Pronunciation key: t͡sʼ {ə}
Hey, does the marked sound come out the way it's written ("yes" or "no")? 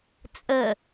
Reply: yes